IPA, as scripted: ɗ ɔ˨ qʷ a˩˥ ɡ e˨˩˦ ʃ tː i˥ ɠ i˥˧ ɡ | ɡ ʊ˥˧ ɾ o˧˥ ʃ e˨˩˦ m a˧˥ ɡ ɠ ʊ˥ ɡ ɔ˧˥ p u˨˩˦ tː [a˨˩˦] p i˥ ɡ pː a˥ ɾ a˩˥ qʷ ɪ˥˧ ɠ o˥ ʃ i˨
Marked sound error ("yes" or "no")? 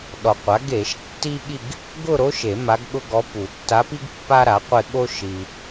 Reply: yes